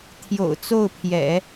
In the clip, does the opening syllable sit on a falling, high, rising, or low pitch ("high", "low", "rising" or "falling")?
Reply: low